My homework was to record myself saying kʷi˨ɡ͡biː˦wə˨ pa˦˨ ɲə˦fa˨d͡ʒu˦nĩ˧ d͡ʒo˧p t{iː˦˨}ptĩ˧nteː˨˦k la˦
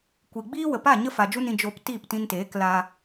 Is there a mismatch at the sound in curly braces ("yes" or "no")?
no